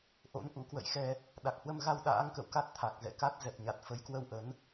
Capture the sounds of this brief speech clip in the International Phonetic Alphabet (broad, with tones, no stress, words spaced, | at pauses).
ʔo̰˧˥nʔṵ˧˥kwə̰˧˨jxɛ˧ | ɗa˨˩k̚hwə˧mɣa˧w ɗa̰ː˧˥ŋkə̰˧˨wka˦˥t̚t̪ʰa˨˩k̚ zɛ̰˧˨ ka˦˥t̚ zɛ˨˩p̚ɲa˨˩t̚ fə˨˦jkwə˧wʔə˨˦n